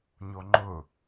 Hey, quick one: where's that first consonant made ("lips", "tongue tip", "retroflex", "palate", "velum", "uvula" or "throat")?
palate